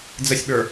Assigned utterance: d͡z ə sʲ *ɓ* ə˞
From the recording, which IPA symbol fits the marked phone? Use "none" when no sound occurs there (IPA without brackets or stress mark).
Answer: ɓ